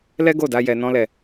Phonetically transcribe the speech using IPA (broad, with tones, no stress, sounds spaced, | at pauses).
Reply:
l ɛ˦ ɡ o˦˨ d a˧ j ɛ˦ n ɔ̃˦ l ɛ˦˨